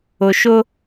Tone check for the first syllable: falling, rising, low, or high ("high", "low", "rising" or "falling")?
low